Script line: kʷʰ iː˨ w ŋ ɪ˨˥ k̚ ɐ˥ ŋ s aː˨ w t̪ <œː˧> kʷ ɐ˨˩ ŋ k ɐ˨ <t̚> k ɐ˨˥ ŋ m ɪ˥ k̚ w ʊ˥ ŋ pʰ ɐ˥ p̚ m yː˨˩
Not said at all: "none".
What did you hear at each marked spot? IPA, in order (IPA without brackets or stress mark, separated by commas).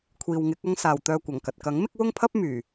œː˧, t̚